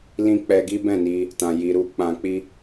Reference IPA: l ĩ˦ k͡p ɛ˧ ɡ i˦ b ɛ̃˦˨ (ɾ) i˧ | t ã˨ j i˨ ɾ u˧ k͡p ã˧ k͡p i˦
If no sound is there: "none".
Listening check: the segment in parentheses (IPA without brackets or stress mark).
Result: n